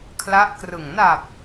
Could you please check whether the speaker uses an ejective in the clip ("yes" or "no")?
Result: no